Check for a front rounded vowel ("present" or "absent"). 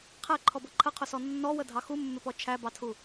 absent